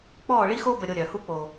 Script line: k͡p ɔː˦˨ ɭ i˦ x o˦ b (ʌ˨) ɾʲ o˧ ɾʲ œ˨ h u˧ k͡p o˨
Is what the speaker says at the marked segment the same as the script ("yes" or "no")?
no